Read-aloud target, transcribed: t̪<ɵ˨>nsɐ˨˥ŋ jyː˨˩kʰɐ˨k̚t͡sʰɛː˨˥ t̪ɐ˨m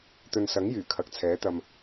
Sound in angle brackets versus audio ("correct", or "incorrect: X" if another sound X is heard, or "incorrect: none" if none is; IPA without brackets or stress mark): correct